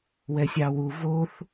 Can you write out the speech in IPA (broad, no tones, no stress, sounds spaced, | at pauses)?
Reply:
w ɛ sʲ ɑ w u v o θ